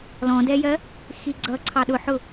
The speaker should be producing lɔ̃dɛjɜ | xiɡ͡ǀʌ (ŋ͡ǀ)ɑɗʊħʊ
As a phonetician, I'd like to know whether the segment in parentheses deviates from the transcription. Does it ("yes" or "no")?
yes